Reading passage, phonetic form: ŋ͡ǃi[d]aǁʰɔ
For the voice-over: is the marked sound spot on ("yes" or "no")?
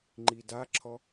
yes